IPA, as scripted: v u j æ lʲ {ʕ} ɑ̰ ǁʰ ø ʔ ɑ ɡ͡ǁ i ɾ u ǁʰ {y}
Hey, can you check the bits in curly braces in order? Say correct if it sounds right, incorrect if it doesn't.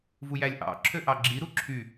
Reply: incorrect, correct

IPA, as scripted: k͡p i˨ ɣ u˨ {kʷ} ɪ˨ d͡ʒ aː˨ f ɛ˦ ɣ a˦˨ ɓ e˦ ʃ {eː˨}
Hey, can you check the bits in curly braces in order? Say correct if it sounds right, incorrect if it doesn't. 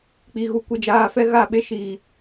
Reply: correct, incorrect

